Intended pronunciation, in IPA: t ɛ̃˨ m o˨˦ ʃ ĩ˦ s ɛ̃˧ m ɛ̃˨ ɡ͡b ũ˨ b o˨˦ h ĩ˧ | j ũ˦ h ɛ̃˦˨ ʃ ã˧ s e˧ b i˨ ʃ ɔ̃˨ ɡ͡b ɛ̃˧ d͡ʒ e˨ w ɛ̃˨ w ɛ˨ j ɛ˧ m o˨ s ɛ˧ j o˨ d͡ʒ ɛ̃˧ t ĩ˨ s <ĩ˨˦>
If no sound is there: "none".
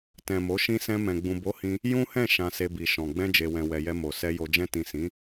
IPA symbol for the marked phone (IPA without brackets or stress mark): ĩ˨˦